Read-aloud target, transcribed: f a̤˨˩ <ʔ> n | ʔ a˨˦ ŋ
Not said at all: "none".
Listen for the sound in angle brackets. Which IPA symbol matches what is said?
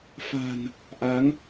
none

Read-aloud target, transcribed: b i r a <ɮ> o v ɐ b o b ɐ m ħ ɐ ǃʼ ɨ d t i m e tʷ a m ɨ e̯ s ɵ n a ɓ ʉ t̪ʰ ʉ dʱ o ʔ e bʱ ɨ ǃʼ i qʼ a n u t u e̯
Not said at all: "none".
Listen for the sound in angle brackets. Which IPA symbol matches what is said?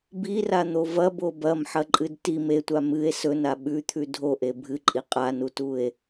n̪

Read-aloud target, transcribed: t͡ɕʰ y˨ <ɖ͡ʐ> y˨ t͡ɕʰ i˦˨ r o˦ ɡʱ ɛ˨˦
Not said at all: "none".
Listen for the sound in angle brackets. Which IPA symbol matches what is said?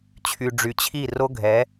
ɖ͡ʐ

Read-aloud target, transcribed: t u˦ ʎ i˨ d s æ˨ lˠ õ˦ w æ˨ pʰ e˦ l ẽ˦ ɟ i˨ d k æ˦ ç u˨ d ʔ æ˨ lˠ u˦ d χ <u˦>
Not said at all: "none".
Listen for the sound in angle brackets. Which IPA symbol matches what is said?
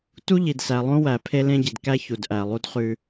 ʉ˦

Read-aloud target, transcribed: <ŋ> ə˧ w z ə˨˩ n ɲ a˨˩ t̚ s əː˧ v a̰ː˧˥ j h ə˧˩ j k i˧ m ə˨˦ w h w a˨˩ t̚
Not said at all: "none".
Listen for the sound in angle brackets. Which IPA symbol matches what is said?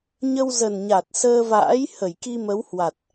ɲ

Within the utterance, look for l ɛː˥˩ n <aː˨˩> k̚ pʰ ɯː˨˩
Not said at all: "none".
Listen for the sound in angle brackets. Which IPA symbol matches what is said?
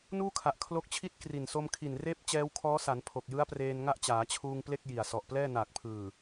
aː˨˩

